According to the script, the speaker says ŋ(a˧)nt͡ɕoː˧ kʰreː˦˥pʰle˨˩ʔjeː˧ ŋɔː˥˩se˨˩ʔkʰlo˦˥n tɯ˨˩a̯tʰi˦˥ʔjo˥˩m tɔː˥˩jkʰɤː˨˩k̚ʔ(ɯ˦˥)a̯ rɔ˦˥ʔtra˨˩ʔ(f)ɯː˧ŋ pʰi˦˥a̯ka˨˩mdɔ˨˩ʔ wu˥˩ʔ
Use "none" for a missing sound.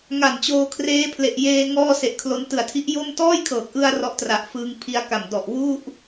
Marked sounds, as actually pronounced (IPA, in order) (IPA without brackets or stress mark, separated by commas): a˨˩, ɯ˧, f